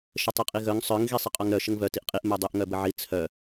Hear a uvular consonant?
yes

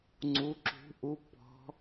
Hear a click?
yes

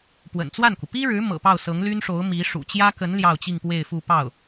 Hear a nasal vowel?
no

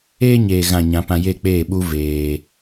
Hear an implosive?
yes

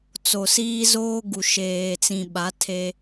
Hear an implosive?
yes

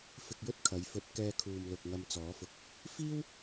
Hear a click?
no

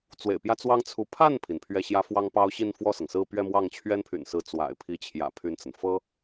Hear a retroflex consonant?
no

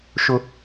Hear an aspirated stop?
no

